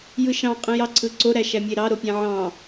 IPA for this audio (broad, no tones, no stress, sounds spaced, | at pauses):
j ɯ ʃ ɑ̃ qʼ ĩ j ɑ ǀʰ ɯ ǀ o ɾ æ ʃ æ mʲ e ɾ ɑ ɾ o pʲ æ̃ ʕ ɑ̃